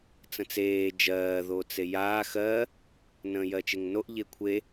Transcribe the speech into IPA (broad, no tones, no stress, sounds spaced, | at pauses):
t͡s ə̃ t͡s eː d͡ʒ ɜː ð o t͡s e j aː x ɜ | n ə̃ː j ɜ t͡ʃ e ŋ n o ʔ ʎ e kʷʰ e